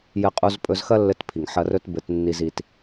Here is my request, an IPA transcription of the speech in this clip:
jɘ˧qʼu˧z pʼɵ˧zxɐ˦lːɘ˧tpʰi˨ŋ ħɐ˧rɵ˦tbɘ˧t nːi˧zi˧t

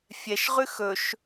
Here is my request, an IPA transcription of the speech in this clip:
fʲɛʃʁʉ xɵʃ

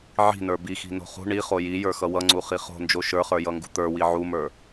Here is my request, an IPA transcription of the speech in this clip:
ʕi̤nə˞ bixi̤no̤ χṳ ɳiχo jijə˞xʌ wʌŋ͡ǀuχi χo̤nd͡ʒo ʃə˞χə˞jʌŋɡṳ t̪ə˞wi ʕumə˞

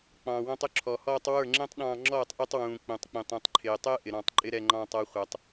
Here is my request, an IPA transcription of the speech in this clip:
k͡pɑ̃ː˨wɔ̃˧tˤʊ˦ ǁʰɔ˨hɔː˧tˤ wə˞˦˨ŋ͡ǁɛ̃˦tˤɗɑ̃ː˧ŋ͡ǁɔː˦˨tˤ ʔi˧tˤwũː˨k͡pũ˨tˤk͡pĩ˨tˤ ĩ˨tˤǃʰɪː˨tˤəː˦ ʔɪ˨ɾɑ̃˦˨tˤǃʼɪ˦ ɾɛ˧ŋ͡ǃɑ̃ː˧tˤɔ˧ χʷʌ˨tˤ

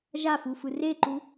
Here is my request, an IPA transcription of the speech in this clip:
ʒafufɯ reǃu

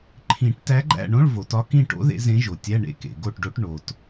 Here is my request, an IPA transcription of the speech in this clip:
ǃʰĩ˨˩˦ʈtæ˧˥ɡ͡ǃæ̰˦˨ɳõ˧˥˧ɭ vo˩tɒ˧˥ kĩ˦˨ʈo̰˧˥ ðḛ˧˥zẽ˧˥ʒo˩ tʲæ˧˥˧ ɳḛ˦˨kḛ˩ ɡo˦˨ʈɖo˧˥ʈ ɳo˩t

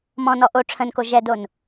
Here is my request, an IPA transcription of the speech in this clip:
mɔ̃nɔ ʔo ʈ͡ʂʰə̃nko ʒɛdon

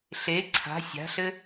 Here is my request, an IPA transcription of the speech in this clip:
ɬe ǀʰa̤ sʲa̤ɬɘ

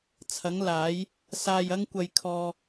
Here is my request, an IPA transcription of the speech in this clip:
t͡sʰɐ˨˥ŋlaː˨˥j | saː˧jɐ˥ŋkʷɐ˧jkʰɔː˧

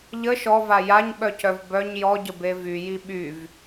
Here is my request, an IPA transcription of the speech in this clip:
ʎə ʃɔva jaɲɓœcœv bœɲ jɔɟəbe vyji ɓyv

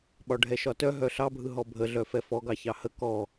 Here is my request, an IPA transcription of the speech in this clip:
ɓɒɖʱɛʃɒtœ ɦœɬɑbʱɯ ɦɔbʱəɮœ fɛfɔɡɑ çɑhə kɔ

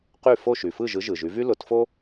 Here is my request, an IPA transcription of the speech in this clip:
qy˥˩ fo˥˩ʃy˩fɯ˥˩ ʒɯ˩˥ ʒɯ˩ʒy˩˥vy˥ lʊ˩˥tfo˥

